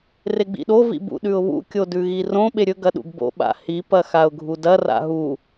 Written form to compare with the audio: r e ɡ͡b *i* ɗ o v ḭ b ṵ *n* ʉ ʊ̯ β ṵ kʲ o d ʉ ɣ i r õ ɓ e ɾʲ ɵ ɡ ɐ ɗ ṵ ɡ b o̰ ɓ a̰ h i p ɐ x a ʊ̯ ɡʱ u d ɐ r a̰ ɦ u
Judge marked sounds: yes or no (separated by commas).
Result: no, no